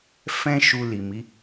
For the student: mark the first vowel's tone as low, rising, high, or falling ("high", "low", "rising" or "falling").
high